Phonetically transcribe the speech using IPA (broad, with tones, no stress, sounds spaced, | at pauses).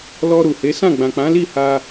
l ɔ˧ ɾ u˨ h e˨˦ s ã˦˨ ɡ͡b ã˨ k͡p ã˨˦ l i˦˨ h a˧